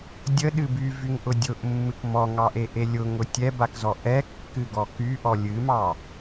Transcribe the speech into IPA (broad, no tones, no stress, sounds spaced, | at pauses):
dʲ ə ɗ ɨ b y v y ŋ ʔ ʊ dʲ ʊ ʔ mː ɨ k m ɔ ŋ ɑ ʔ e ʔ e lʲ ʊ ŋ ʊ tʲ ɛ b a k z ɔ ʔ ɛ kː ɨ ɡ ɔ k y ʔ ɔ lʲ ɨ m ɑ